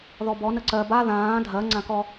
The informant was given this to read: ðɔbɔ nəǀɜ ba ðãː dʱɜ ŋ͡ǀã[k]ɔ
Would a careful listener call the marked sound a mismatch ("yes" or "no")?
no